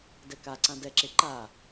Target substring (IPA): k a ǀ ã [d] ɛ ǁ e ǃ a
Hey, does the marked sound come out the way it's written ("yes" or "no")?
yes